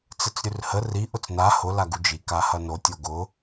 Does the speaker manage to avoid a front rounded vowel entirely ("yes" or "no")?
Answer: yes